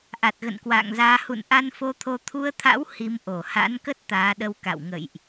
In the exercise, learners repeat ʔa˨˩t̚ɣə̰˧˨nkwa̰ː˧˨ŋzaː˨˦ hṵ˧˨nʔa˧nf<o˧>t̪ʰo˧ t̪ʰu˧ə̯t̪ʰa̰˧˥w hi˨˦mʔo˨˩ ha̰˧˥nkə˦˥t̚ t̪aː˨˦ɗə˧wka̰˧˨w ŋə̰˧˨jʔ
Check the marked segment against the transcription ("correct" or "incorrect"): correct